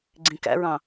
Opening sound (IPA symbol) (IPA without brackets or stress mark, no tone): ɡ͡ǀ